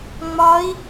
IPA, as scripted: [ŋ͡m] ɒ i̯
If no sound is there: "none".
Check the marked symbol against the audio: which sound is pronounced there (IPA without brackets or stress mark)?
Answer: ŋ͡m